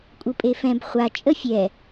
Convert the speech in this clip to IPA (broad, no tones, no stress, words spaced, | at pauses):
kʷʼɯpʼefɛ̃b χʷa t͡ʃʼəfʲɛ